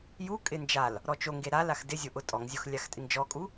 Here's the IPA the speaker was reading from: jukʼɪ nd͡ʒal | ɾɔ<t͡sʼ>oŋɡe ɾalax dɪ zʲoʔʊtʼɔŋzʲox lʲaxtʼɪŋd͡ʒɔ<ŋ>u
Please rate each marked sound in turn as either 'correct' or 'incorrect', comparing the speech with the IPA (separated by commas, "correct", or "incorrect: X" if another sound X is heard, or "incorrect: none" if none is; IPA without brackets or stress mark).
incorrect: t͡ʃ, incorrect: kʼ